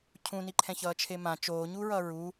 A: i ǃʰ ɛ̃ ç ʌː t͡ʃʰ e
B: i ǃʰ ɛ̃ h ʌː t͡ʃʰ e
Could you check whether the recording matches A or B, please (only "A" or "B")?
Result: A